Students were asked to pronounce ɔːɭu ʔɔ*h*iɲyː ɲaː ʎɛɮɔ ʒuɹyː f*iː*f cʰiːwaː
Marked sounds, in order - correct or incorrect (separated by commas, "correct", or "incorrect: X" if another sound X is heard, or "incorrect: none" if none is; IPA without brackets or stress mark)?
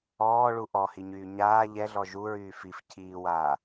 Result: correct, incorrect: i